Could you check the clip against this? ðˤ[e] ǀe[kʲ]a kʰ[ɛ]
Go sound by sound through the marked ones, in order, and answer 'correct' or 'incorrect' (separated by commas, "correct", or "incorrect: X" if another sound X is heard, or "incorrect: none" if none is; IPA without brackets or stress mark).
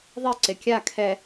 correct, correct, correct